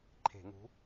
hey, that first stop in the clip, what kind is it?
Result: click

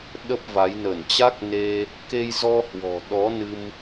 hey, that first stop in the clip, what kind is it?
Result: implosive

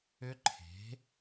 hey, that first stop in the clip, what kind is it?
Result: click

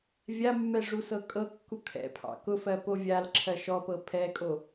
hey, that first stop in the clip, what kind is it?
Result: ejective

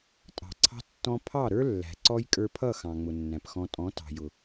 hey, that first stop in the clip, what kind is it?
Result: ejective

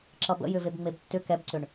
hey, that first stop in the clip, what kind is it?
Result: click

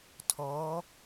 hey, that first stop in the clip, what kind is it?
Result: aspirated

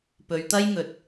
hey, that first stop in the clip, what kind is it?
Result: plain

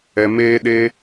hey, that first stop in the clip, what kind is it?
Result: implosive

